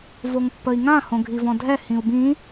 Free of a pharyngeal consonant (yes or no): yes